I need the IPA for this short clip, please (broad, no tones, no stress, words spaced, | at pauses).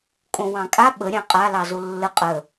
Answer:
kʼõwɑ̃kʼa ɓə ɾʲɑ̃qʼa lɑzolːə qʼə